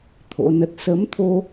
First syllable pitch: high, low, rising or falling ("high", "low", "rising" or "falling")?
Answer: rising